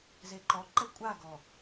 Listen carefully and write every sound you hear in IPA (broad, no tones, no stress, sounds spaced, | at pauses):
z e ǃ ɔ ǃ ɛ kʷʼ a ɡ ɔ